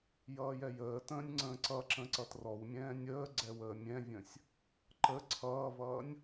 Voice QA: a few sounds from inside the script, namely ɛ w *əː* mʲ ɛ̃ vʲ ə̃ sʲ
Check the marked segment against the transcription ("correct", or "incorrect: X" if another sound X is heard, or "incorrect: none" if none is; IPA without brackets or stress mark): correct